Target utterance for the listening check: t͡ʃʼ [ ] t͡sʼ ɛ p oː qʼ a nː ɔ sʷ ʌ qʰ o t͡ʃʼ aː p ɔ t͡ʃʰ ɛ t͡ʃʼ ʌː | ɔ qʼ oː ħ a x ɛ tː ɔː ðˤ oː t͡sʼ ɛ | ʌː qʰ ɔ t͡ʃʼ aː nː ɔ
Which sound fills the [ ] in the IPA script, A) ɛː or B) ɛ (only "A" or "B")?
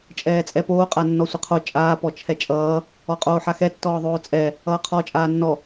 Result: A